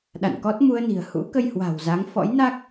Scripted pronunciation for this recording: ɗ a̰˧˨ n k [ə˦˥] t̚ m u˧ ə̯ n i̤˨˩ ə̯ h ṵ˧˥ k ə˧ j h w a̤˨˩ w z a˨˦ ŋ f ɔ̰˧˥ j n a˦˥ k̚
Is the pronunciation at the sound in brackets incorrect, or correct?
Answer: incorrect